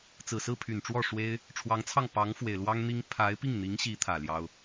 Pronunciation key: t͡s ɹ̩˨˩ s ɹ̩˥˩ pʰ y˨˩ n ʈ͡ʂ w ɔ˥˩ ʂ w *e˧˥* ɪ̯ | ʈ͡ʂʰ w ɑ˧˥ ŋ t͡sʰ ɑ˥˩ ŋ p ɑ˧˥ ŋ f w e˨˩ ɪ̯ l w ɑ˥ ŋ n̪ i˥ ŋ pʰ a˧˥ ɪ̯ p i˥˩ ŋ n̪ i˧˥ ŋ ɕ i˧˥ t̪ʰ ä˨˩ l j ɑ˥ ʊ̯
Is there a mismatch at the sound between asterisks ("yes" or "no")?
yes